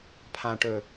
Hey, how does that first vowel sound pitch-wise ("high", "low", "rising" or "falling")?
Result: low